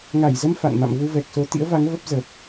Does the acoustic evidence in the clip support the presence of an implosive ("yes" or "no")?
no